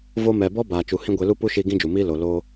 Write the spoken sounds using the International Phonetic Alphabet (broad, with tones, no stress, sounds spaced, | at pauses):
v o˧ m ɛ˨ b ɔ˦ b aː˨ t͡ʃ u˨ h ĩ˦ ɡʷ e˧ l u˦ p u˦ ʃ i˧ ɡ ĩ˦ d͡ʒ u˨ m iː˦ l o˨ l oː˦